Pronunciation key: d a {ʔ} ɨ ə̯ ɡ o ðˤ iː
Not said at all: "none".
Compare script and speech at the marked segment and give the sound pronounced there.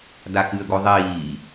k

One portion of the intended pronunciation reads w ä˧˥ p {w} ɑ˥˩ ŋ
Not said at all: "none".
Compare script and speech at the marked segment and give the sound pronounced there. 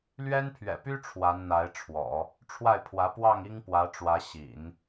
w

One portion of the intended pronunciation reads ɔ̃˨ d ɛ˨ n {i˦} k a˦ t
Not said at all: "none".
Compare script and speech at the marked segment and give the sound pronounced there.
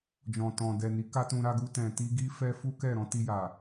i˨˦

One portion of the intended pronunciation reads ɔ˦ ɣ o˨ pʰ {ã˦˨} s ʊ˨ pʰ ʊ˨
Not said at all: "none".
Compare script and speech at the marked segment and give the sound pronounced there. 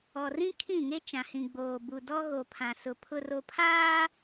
ã˨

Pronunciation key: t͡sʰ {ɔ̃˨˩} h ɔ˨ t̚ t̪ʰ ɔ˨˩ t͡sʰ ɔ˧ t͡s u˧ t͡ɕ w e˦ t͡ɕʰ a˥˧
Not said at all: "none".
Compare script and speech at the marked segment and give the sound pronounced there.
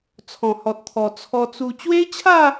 ɔ̃˨˩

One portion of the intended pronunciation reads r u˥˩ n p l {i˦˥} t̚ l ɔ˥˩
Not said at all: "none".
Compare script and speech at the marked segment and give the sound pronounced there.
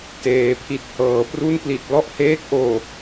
i˨˩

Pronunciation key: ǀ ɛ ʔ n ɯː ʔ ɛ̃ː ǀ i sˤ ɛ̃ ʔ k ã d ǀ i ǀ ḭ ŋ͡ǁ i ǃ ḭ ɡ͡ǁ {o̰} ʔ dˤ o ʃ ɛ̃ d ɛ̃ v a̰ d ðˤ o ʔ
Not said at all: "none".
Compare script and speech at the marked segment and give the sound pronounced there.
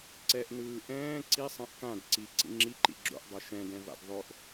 o̰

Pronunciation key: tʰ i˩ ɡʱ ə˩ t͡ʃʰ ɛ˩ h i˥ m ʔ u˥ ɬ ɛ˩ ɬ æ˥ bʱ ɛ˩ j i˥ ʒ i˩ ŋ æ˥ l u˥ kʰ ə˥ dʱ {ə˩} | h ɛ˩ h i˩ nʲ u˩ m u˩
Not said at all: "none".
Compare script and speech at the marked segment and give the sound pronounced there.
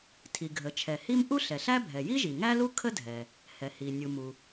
ɛ˩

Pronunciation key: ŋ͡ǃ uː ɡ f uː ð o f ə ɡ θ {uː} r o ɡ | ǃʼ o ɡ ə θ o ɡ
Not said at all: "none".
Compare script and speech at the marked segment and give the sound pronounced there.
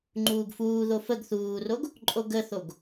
uː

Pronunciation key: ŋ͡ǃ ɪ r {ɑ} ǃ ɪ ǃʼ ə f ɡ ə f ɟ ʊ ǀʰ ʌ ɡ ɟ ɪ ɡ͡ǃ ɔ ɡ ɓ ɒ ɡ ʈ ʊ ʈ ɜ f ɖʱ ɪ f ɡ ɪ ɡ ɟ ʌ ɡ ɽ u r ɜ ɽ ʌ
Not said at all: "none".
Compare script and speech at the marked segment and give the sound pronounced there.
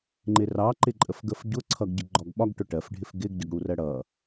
ɑ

